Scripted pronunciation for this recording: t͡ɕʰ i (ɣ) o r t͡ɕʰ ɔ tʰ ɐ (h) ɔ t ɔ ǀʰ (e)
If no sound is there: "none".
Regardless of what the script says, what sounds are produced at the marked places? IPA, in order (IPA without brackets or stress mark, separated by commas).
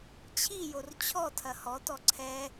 j, h, ɛ